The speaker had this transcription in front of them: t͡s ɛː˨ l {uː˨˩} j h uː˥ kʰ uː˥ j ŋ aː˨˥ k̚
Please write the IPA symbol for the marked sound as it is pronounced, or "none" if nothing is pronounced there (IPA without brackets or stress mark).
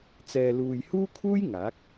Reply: uː˨